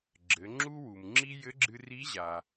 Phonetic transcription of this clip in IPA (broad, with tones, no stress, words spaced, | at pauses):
ɡ͡ǁɘ˩˧ ŋ͡ǁu˥wu˩mŋ͡ǁi˥ jɘ˧˥ɡ͡ǁɨ˧ri˧˥ʑa˩